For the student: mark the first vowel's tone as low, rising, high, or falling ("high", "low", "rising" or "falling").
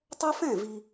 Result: high